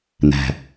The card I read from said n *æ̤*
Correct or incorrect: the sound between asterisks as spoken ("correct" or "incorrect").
correct